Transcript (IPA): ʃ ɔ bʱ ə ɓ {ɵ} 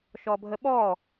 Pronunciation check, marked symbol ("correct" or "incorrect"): incorrect